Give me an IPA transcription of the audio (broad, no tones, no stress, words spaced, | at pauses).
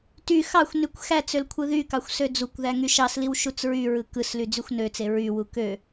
ty xɑxʷnykʷ xæt͡søl kʷʰɯðykɑxʷ sød͡zukʷðæ ŋyʃɑsliw ʃut͡sɹyɹɯ kɯsly d͡zyxʷnøt͡se ɹywu kø